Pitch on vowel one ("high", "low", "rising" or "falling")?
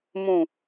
low